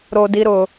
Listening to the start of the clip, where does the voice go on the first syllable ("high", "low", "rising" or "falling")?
high